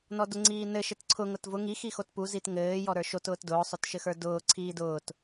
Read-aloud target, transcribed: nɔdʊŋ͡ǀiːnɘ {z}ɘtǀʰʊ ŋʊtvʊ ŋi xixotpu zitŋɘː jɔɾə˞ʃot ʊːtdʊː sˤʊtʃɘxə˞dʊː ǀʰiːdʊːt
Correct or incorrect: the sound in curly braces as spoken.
incorrect: ʃ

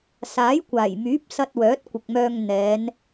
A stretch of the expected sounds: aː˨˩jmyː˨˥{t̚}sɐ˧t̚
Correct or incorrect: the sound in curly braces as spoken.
incorrect: p̚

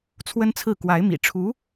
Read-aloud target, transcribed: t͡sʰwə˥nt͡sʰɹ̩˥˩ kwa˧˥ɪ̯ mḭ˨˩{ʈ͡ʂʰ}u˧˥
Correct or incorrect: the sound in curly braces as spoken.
correct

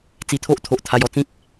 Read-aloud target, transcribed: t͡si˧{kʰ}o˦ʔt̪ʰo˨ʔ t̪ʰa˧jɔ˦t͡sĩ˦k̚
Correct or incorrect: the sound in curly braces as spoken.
incorrect: t̪ʰ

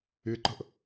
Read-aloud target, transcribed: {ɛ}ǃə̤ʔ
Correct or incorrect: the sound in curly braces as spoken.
incorrect: ɪ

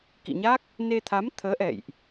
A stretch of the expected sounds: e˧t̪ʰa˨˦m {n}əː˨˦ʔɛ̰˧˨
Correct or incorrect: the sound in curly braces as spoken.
incorrect: t̪ʰ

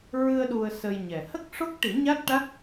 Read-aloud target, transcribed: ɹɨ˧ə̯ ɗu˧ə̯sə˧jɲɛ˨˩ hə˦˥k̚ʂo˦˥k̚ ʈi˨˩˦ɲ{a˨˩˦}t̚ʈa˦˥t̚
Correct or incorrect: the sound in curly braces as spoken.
incorrect: a˦˥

